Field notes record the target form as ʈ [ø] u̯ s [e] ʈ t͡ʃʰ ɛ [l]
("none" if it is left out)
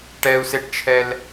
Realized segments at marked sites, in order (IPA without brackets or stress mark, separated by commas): ɛ, e, l